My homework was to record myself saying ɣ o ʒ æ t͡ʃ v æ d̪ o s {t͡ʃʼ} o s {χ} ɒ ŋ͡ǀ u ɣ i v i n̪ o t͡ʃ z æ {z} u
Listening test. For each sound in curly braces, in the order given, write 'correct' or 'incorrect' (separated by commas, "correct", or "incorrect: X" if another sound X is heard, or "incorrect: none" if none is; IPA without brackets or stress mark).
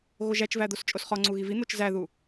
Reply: correct, correct, incorrect: ð